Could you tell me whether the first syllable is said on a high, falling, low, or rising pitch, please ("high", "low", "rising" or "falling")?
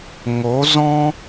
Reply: rising